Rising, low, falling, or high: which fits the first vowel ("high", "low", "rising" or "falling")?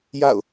falling